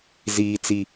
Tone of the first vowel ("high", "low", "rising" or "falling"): low